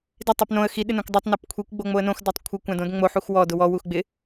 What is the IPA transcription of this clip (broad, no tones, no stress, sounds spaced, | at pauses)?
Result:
d ɪ tˤ u p n õ ə̯ x i ɗ ɪ n õ kʷ dˤ o tˤ n a p kʷʰ i kʷ ɡ͡b o ŋ͡m o ə̯ n õ x d a tˤ kʷʰ ɪ kʷ ã d õ d ŋ͡m o ħ u x w ɔ d ʊ w ɔ w u x ɡ͡b ɪ